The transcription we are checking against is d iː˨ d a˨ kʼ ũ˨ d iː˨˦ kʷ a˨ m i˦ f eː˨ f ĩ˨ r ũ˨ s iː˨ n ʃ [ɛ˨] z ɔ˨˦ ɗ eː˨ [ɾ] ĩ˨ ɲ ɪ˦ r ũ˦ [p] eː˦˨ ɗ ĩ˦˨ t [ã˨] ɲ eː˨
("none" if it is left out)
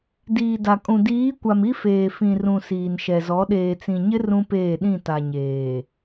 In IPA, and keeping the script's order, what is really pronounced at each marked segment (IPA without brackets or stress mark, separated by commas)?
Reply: ɛ˨, t͡s, p, a˨